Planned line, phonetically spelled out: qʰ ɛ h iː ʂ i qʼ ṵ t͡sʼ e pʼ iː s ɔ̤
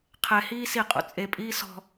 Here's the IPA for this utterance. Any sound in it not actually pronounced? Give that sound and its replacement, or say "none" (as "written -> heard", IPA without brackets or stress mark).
ʂ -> s